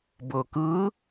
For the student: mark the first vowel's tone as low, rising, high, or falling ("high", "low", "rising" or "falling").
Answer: low